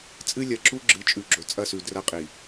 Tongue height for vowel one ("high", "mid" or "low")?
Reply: high